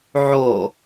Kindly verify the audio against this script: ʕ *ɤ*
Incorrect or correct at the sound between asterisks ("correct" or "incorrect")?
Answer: incorrect